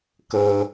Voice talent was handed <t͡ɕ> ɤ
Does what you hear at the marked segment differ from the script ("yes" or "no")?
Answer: yes